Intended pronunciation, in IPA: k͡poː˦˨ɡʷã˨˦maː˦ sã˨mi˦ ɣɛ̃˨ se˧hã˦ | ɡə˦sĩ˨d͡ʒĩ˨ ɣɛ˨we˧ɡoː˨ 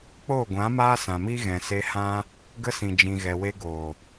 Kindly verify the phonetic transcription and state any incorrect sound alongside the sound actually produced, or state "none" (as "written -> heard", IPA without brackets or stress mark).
none